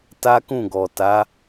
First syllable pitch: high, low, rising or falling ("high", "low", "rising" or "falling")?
high